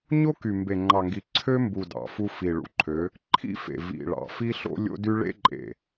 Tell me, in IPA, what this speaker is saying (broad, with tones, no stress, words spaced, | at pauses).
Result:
ɲo˦ky˨ mbe˨ŋ͡ǃɑ˨ŋɡi˨ ǀʰø˦mbu˨ dɑ̰˨fu˦ fi˨ɭṵ˨ǃʰø˨˦ | ǃʰḭ˦fḛ˨ vḭ˨ ɭɑ̰˨fi˦ɬo̰˦ lʲo̰˦dy˦ ɭḛ˦ǃʼḛ˨